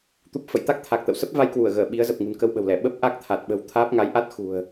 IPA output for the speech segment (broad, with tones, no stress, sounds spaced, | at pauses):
t̪ u˦˥ p̚ f ə̰˧˨ j t̪ a˦˥ k̚ t̪ʰ a˨˩ k̚ t̪ ə̰˧˨ w s ə˦˥ p̚ v a˧ j k w u˧˩ ə̯ ɣ əː˧˩ ɓ i˨˦ ə̯ z ə˨˩ p̚ ŋ ṳ˨˩ n k ə˧ w ɓ ə̤˨˩ w l ɛ˧˩ ɓ ə˦˥ p̚ ʔ a˦˥ k̚ t̪ʰ a˨˩ t̚ ɓ ə̤˨˩ w t̪ʰ aː˦˥ p̚ ŋ a˨˦ j ʔ a˦˥ t̚ x ṳ˨˩ ə̯